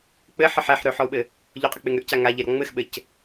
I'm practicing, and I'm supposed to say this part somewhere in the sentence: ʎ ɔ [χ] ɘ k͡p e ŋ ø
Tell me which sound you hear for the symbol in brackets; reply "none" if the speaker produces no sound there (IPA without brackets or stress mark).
qʼ